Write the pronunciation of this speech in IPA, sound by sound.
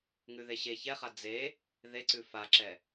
ŋ ʉ ð e ɕ e ç ɛ χ a d͡z e | ð e ǀ ʉ f a ǁ ɛ

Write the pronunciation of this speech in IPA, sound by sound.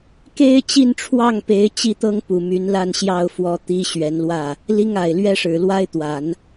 k e˥ ɪ̯ t͡ɕ i˥˧ n ʈ͡ʂʰ w ɑ˥˩ ŋ p e˧˥ ɪ̯ t͡ɕ i˥ t̪ ɤ˥ ŋ p u˨˩ m y˧˥ n l a˥˧ n ɕ j ɑ˥˩ ʊ̯ f w ɔ˧˥ t̪ i˥ ɕ ɥ ɛ˧˥ n l w ä˥˩ | l i˥ ŋ a˨˩ ɪ̯ l ɥ ɛ˥ ʂ ɻ̩˨˩ l w a˥ ɪ̯ t̪ w a˨˩˦ n

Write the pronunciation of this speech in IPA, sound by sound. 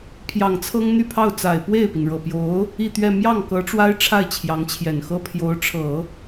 pʰ j ɑ˨˩ ŋ t͡sʰ ɤ˥ ŋ n̪ y˥˧ pʰ ɑ˥˩ ʊ̯ t͡s a˨˩ ɪ̯ p w e˥˩ ɪ̯ p i˩ n ɻ ɤ˨˩ p j o˧˥ ʊ̯ | i˥˧ t̪ ɥ ɛ˥˧ m j ɑ˥˩ ŋ k ɤ˧˥ ʈ͡ʂ w a˥ ɪ̯ ʈ͡ʂʰ a˥˩ ɪ̯ t͡ɕʰ j ɑ˧˥ ŋ t͡ɕʰ j ɛ˨˩ n x ɤ˥ pʰ j o˧˥ ʊ̯ ʈ͡ʂʰ ɤ˨˩˦

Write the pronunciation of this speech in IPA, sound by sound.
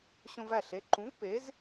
ɕ õ˧ v æ˥˩ ɬ e˩˥ ǃ ũ˩˥ v p e˩˥ z

